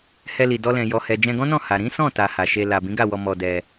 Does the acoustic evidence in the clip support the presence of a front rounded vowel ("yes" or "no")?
no